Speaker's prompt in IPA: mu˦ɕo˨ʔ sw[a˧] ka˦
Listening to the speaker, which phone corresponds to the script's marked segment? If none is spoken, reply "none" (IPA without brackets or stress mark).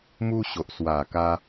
a˨˩